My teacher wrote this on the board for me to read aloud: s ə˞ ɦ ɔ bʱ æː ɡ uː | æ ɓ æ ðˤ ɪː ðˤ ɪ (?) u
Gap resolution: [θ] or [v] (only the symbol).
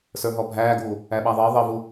v